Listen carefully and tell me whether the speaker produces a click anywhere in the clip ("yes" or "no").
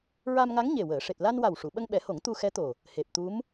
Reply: no